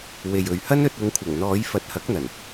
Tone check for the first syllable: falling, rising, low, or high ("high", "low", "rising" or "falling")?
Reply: low